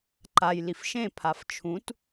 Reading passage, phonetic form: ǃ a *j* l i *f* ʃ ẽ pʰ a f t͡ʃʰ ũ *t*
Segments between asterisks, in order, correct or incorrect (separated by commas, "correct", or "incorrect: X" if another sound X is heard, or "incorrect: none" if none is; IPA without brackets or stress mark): correct, correct, correct